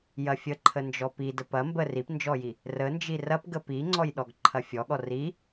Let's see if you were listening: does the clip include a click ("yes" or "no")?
yes